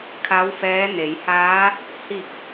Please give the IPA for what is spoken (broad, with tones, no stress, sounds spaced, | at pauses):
kʰ a˧˥ w f ɛː˧˥ n e˩˧ j h aː˧˥ | h i˧˩ k̚